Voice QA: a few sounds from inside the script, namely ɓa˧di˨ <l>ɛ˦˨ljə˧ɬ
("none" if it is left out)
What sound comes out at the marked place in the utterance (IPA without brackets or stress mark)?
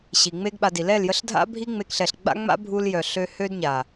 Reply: l